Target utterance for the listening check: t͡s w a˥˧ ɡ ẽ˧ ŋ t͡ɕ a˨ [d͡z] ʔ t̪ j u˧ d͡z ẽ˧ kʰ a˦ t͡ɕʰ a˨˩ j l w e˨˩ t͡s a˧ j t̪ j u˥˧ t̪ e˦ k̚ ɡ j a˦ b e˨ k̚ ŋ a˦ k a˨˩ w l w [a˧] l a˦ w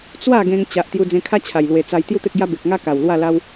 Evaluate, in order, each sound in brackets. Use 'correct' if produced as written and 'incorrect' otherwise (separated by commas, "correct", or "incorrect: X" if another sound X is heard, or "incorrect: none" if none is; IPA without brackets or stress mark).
incorrect: none, incorrect: a˥˧